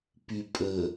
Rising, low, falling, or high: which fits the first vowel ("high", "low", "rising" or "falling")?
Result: low